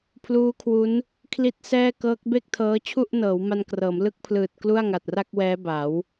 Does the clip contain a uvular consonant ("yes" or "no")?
no